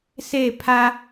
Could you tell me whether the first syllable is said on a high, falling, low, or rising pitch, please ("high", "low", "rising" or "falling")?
falling